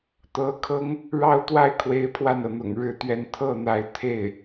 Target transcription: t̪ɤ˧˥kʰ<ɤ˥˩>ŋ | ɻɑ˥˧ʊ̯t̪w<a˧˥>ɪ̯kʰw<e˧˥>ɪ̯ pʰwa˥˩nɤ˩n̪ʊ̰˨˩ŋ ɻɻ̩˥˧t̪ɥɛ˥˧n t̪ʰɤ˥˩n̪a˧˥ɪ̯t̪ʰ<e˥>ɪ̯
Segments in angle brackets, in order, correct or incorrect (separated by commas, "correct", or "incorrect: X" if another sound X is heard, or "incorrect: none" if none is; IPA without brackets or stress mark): incorrect: ɤ˥, incorrect: a˥˩, correct, incorrect: e˥˩